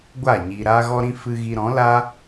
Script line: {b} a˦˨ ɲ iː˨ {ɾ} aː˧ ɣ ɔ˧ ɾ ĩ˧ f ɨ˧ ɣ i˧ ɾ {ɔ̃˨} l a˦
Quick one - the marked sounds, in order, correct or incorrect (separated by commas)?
incorrect, correct, incorrect